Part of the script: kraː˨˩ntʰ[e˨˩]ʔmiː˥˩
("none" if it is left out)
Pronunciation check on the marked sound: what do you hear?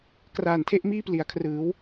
e˥˩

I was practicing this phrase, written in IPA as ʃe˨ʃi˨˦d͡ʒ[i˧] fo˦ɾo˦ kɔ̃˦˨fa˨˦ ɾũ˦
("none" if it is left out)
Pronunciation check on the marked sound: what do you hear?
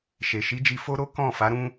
i˧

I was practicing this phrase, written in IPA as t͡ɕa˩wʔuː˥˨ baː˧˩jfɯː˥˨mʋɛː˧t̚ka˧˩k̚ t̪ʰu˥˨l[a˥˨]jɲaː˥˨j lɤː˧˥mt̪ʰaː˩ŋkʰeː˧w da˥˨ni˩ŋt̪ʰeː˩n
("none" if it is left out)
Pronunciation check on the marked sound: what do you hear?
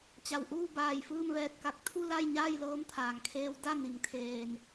a˥˨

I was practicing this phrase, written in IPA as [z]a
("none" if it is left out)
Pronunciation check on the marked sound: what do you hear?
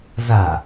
z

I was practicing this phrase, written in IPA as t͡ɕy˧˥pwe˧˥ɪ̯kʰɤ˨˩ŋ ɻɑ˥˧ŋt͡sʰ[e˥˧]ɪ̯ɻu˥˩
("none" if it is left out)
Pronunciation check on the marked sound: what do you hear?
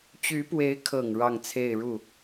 e˥˧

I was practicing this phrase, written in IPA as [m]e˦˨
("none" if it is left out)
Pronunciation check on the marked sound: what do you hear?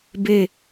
b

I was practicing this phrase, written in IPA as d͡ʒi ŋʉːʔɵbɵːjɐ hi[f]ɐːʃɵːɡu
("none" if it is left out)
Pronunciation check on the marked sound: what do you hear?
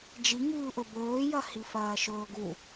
f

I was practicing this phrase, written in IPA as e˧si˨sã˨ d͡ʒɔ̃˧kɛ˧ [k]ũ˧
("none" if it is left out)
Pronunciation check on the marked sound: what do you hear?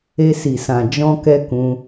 k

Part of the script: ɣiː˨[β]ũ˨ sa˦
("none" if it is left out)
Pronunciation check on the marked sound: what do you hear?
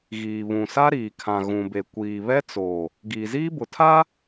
β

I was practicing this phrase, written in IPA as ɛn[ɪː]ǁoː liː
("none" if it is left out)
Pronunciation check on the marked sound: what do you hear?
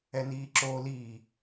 iː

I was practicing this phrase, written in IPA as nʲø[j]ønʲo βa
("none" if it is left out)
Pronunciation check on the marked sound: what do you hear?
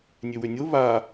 w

